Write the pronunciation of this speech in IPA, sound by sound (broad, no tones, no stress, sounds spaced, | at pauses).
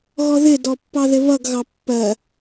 ɣ ɔ ð ɪ d ɔ pː ɑ ð ɪ β ʌ ɡ ɣ ɑ pː ɜ